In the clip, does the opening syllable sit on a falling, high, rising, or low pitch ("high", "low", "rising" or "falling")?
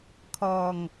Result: low